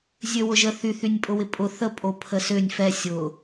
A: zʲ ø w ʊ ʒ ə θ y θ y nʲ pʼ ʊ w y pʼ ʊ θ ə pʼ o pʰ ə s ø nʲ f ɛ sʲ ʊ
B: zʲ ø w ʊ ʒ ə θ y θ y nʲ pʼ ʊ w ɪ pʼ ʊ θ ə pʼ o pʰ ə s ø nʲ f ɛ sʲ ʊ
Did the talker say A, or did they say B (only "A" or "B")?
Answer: B